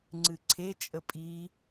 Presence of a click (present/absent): present